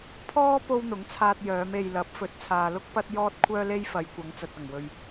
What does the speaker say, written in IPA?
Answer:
pʰ ɔː˥ p o˥ w n̪ ʊ˨˥ ŋ t͡sʰ aː˧ t̚ j œː˨˧ m e˨ j l ɐ˨˥ p̚ f ɵ˨ t̚ t͡sʰ aː˨ l ʊ˥ k̚ p ɐ˥ t̚ j ɔː˥ t̚ kʷʰ œː˥ l e˥ j f ɐ˨˧ j kʷ ɐ˨˧ ŋ t͡s ɐ˨ t̚ ɐ˨˩ ŋ w ɵ˨ ɥ

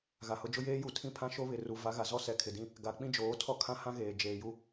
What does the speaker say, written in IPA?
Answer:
ɣ a˨ h ʊ˨˦ d͡ʒ ʊ˦ j eː˦ j u˨ tʰ ĩ˦ pʰ ã˦ ʃ o˦ β ɪ˨ r u˨ v a˨˦ ɣ a˨ z ɔ˦ s ɛ˨ kʰ ɪ˨ d ĩ˦ | ɡ a˨ k͡p ĩ˦ d͡ʒ oː˨˦ tʰ ɔ˦ kʰ ã˦ h ã˦ ɣ eː˨ d͡ʒ eː˨ j u˦

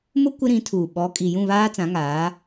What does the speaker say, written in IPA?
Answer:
m ʊ˦ kʷ ɪ˦ ɾ ĩ˨˦ tʰ uː˨ ɓ ɔ˨˦ kʼ i˨ j ũ˦˨ β aː˦ t͡s ã˨˦ ŋ aː˨˦

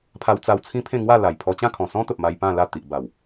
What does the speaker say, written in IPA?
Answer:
pʰ a˧ w t͡s a˧ w t͡sʰ ĩ˦ pʰ ẽ˥˧ ŋ w a˥˧ l a˨˩ j pʰ ɔ˧ t͡ɕ ã˥˧ kʰ ɔ̃˨˩ s ɔ̃˦ t̪ ə˨ p̚ m a˧ j p ã˥˧ l a˥˧ t̪ i˨ ʔ b a˨˩ w

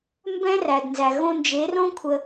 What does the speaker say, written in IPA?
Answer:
m b ɛ̃˦ r æ˨ d n z æ˨ ɣ õ˧ n d͡ʒ e˨˦ r õ˦ kʷʰ ə˧

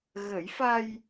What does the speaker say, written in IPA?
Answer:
ɣ ə˨˩˦ j f a˧ j

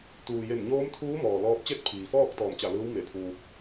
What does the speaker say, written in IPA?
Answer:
t̪ uː˩ j e˧˩ n ɲ oː˧˥ m t̪ʰ uː˧˥ m ɔː˩ l ɔː˧ p̚ t͡ɕ e˥˨ t̚ pʰ iː˩ f ɔː˥˨ k̚ t̪ ɔː˧˩ m t͡ɕ a˧˩ l ɯː˧˥ w m e˧˩ pʰ uː˧ k̚

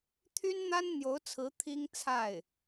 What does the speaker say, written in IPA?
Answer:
t̪ʰ y˥ n n̪ a˥ n n̪ j o˧˥ ʊ̯ t͡sʰ ɹ̩˧˥ t̪ʰ i˥ ŋ t͡sʰ a˥˩ ɪ̯

